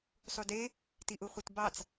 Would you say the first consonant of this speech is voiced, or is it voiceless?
voiceless